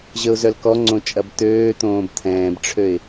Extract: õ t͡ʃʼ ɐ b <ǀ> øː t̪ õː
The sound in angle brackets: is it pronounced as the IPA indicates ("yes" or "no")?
no